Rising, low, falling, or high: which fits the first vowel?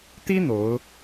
high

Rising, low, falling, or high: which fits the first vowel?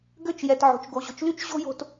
falling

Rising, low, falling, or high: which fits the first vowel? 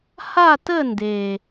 falling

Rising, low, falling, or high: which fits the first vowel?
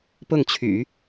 falling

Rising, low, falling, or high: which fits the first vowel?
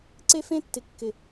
high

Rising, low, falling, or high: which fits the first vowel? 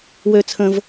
low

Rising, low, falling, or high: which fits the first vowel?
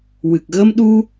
low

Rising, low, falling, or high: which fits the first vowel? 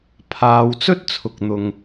low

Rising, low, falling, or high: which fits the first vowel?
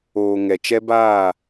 low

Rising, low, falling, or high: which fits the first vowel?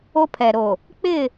high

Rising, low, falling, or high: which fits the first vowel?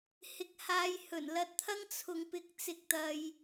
rising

